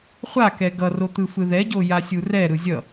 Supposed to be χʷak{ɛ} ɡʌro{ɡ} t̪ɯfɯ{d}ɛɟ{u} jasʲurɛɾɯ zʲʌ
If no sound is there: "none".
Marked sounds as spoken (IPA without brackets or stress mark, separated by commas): ɛ, none, ð, o